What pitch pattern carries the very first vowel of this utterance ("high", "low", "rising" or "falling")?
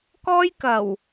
high